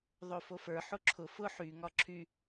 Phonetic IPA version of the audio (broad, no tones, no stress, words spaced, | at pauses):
ðˤofofə˞ ħoǁʰʊ fʊ ħy ŋɒǁʰy